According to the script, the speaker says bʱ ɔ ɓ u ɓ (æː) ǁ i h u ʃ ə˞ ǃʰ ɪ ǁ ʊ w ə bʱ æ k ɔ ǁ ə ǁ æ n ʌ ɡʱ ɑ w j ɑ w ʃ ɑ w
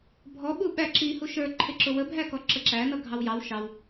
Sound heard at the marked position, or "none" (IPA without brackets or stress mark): æ